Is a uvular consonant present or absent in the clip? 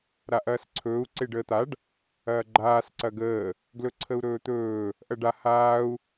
absent